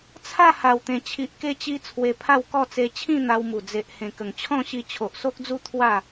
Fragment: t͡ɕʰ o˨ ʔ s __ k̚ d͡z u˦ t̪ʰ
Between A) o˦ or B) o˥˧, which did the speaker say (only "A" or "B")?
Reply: A